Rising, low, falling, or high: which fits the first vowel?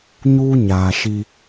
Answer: high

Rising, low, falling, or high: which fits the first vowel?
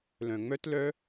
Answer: low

